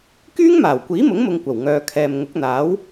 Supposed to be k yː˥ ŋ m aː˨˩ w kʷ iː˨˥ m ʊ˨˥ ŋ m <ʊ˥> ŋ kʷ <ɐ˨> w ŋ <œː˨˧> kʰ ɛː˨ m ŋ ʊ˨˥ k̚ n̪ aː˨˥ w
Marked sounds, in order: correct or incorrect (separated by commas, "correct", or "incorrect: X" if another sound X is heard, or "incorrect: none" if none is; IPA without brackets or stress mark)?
incorrect: ʊ˧, incorrect: ɐ˨˩, correct